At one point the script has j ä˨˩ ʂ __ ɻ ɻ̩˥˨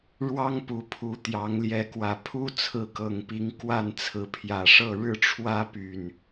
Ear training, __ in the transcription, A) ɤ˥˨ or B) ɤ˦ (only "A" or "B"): A